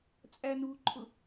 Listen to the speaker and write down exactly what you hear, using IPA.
t͡sʼ æ n u ǃʰ ʊ

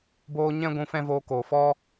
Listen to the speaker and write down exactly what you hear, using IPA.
b oː˦ ɲ ɛ̃˦ ɡʷ ũ˧ f ɛ̃˦ v oː˧ k oː˨ f ɔ˦

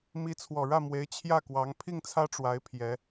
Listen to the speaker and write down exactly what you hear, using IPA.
m i˧˥ t͡sʰ w ɔ˨˩ ɻ ä˥˩ m w e˧˥ ɪ̯ t͡ɕʰ j ä˥˩ k w ɑ˧˥ ŋ pʰ i˥˩ ŋ t͡sʰ ä˥ ʈ͡ʂ w a˧˥ ɪ̯ pʰ j ɛ˧˥

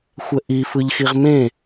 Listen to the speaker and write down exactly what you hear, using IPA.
xʷ ɛ ʔ i f ɯ ʎ x i ʁ m ẽ

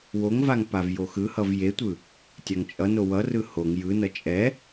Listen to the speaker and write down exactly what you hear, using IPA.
w o ŋ v a ŋ p a v j o x ɯ h ʌ v j e tʷ ɯ | tʲ a ŋ t͡ʃʼ ʌ n o w ʌ r ɯ h o ŋ j ɯ n ʌ t͡ʃʼ ɛ

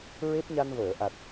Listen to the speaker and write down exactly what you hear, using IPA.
ɹ e˦˥ p̚ ɲ a˧ n v əː˨˩˨ ʔ a˨˩ t̚

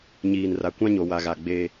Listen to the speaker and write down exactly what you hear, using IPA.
ɲ iː˨ n r a˨ kʷ ã˦ ɲ o˨ w a˨ ɣ a˨ ɡ͡b e˦

